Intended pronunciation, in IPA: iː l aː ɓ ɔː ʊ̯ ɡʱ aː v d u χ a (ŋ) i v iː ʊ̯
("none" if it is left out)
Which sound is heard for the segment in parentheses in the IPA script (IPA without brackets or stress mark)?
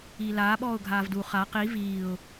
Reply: q